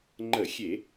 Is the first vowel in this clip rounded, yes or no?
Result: no